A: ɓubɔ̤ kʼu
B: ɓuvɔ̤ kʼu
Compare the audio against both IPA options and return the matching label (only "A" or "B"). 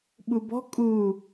A